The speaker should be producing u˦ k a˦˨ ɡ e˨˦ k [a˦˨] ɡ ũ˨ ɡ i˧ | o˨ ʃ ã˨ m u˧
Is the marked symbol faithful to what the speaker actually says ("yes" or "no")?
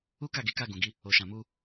yes